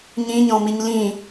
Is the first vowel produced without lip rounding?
yes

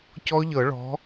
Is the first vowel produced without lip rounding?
no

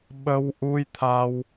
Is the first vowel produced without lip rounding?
yes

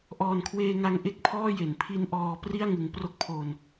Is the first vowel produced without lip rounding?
no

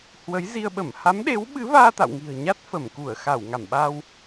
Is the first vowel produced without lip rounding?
yes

